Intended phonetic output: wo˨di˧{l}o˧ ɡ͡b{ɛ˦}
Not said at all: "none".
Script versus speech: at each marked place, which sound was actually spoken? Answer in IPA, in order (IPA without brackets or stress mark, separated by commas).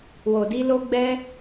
l, ɛ˦